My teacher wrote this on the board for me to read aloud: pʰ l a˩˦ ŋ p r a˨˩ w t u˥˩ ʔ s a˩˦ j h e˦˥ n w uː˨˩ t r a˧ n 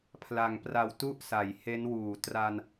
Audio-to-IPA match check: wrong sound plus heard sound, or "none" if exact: none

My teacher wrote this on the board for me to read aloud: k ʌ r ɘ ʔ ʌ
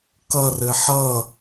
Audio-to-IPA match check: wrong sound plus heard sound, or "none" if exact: ʔ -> ħ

